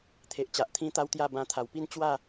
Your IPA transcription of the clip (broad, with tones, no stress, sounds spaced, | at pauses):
t̪ʰ e˨ ʔ t͡ɕ a˨ ʔ t̪ʰ ĩ˦ t̪ a˦ w t̪ j a˥˧ b ã˧ t̪ʰ a˨˩ w p i˥˧ n t͡ɕ w a˥˧